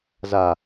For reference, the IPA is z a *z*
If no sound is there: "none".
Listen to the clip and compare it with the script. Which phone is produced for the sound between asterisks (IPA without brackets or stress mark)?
none